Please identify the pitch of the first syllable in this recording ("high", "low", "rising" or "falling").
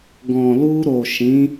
low